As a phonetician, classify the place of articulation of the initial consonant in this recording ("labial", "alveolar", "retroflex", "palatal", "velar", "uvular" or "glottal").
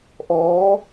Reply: glottal